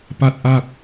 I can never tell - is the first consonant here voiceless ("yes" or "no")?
yes